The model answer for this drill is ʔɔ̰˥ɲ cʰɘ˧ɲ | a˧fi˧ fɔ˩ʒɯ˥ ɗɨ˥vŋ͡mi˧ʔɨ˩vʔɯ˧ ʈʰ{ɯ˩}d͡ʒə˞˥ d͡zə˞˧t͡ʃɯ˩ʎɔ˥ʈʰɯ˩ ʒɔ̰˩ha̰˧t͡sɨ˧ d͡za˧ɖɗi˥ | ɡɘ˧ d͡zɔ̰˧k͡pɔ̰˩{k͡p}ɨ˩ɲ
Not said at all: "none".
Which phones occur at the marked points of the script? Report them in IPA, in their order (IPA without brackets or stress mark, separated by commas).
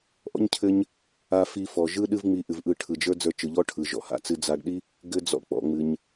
ɯ˩, ŋ͡m